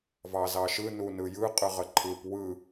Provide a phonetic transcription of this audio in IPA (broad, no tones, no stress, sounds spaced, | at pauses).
v ɑ z ɑ ʃ ɯ n u n ɯ j ɯ qʼ ɯ ʁ ə ǃʰ ɯ p w ɯ